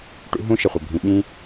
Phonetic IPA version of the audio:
ʈ ṵ˦ ɦ ũ˦ ʃ ɪ˨ χʷ ɪ˨ bʱ ĩ˨ ɓ ĩ˦

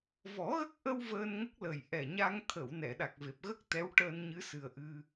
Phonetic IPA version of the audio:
v ɔ˨˩˦ ɣ ə˦˥ k̚ ʔ ə˧ w v əː˧ n ŋ ə˦˥ k̚ l ə˨˩ j ʔ ɛ˨˩ ɲ a˧ ŋ t̪ʰ ə˨˩˨ w n ɛ˨˩˨ ɗ a˨˩ k̚ v e˨˩ p̚ ɣ ə˦˥ k̚ t̪ ɛ˧˥ w ʈ əː˧ n ɲ ɨ˧˥ s ɨ˨˩ ə̯ ʔ ɨ˧

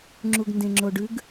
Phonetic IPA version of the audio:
ŋ͡ǁ u ɡ n d ẽ ŋ͡ǁ o ɖ ʉ ɡ

